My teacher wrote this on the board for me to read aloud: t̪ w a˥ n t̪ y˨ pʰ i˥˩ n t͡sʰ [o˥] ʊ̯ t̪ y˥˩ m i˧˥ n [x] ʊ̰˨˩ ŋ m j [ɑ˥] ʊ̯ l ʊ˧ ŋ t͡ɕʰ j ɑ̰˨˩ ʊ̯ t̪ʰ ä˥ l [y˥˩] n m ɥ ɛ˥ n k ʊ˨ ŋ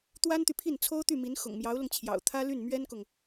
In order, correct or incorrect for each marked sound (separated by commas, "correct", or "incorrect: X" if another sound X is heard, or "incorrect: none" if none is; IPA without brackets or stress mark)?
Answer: correct, correct, incorrect: ɑ˧˥, correct